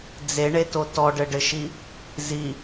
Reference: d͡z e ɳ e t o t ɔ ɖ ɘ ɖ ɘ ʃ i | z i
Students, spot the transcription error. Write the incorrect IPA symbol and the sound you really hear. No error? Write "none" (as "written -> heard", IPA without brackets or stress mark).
none